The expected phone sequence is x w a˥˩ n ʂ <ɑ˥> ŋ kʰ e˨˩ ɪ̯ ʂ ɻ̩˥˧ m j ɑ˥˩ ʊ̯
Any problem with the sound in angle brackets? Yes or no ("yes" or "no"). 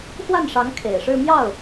yes